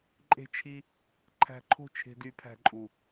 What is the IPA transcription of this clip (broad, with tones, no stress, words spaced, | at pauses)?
ǃʼe̤˦t͡ʃʰi˦ | ǃʰæ̤˧ǃʰo̤˦˨ t͡ʃʰe̤˧dy˨˦pʰæ̤˧ǃʼu˨